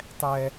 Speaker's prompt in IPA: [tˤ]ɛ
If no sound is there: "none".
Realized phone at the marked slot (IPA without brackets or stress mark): tˤ